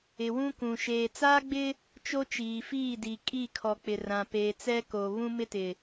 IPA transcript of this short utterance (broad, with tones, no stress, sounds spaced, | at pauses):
ɪ˨ w ũ˦ k ũ˨ ʃ eː˨ t͡s aː˦ ɡ͡b ɪ˦ | t͡ʃ o˦ t͡ʃ iː˨ f iː˦˨ d i˨ kʼ i˦˨ kʰ ɔ˨ k͡p ɪ˨ r ã˨ p eː˨ t͡s ɛ˦ k o˨ β ũ˦ m ɪ˦ t ɪ˨